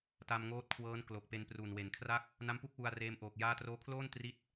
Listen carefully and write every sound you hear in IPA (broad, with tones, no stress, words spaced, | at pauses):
ta˧mŋoː˦˥t̚kʰwɤː˦˥n klo˨˩k̚pe˧npru˨˩n we˩˦nkʰra˥˩k̚ | na˦˥mpu˦˥k̚ wu˧a̯ reː˧mʔoː˨˩k̚ jaː˧troː˧kʰloː˥˩n tri˥˩t̚